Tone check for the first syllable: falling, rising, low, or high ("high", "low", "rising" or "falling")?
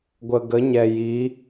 low